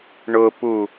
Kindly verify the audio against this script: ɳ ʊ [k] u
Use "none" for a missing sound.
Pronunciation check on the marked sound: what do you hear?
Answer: p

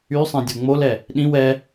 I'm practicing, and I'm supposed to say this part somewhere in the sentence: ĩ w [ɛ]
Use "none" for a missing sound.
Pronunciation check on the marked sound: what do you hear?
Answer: ɛ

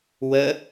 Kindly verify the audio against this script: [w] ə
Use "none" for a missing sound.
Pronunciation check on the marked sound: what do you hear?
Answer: w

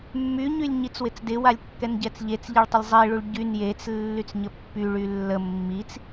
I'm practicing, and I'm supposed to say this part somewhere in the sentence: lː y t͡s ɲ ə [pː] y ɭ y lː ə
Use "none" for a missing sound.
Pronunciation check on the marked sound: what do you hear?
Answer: pː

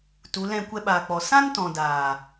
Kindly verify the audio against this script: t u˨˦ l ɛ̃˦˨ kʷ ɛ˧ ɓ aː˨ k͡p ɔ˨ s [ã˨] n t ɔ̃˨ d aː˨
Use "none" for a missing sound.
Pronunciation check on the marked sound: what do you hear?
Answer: ã˦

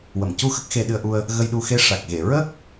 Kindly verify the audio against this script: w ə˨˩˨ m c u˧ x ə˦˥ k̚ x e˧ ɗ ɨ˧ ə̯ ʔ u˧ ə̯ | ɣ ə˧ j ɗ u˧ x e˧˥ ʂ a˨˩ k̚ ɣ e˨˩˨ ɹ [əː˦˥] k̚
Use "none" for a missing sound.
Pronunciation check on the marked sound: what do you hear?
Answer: əː˦˥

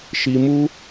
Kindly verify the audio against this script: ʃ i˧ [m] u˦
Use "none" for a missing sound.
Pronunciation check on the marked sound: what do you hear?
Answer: m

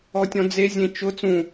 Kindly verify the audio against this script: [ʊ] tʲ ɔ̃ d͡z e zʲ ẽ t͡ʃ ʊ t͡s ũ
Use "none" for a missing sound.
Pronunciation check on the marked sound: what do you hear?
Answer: ɔ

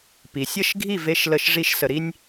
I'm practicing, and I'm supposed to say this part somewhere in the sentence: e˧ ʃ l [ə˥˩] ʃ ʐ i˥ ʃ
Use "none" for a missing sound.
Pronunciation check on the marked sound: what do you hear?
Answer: ə˥˩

